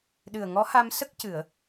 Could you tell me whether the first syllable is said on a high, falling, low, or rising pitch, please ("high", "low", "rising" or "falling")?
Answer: low